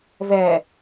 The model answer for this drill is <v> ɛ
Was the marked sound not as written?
no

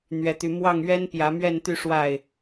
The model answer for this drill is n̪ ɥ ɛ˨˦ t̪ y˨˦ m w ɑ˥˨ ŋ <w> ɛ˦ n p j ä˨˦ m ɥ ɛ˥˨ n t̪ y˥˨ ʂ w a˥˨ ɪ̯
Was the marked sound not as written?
yes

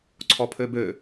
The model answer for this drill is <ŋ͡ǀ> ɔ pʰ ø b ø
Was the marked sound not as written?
yes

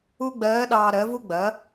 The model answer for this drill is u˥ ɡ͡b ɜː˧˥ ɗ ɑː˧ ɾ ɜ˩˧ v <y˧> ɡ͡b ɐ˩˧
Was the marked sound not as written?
yes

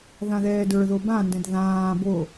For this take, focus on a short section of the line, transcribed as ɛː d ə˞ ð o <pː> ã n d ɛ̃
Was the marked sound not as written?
yes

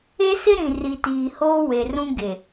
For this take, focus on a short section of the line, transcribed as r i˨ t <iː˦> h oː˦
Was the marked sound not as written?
yes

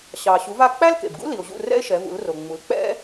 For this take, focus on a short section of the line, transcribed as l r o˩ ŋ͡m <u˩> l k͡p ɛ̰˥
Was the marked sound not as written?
yes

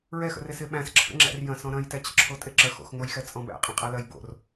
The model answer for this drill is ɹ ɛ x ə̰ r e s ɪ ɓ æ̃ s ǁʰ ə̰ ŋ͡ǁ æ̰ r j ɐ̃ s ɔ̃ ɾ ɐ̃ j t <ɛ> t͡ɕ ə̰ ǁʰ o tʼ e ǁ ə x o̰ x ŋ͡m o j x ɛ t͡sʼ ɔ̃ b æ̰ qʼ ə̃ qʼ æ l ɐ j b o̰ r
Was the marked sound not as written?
no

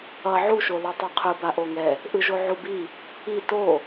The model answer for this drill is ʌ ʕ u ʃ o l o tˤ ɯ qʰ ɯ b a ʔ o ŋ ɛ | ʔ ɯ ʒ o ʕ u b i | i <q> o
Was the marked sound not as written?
yes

